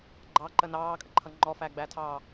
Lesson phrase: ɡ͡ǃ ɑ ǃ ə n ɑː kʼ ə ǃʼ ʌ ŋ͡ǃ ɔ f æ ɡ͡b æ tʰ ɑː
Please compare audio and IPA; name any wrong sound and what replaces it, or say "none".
ǃʼ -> ǃʰ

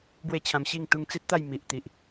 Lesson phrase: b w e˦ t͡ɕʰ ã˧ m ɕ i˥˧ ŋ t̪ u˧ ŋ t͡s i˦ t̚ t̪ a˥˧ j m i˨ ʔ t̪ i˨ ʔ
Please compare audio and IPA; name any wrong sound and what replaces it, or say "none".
none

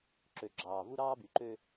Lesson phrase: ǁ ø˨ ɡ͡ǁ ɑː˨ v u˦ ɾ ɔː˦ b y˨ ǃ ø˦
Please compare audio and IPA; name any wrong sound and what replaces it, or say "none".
ɔː˦ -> ɑː˦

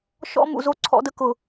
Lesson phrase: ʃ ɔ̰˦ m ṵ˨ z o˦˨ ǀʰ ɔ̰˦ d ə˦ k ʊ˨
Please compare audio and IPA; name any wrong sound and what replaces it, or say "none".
none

